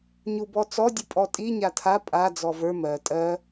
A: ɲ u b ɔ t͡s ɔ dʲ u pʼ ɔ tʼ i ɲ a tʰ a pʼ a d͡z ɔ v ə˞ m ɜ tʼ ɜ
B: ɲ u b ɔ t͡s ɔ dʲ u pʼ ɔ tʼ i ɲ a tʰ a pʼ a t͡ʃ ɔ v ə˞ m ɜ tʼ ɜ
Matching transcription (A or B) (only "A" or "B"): A